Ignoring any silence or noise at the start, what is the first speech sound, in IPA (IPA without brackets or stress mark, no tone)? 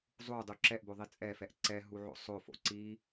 zˤ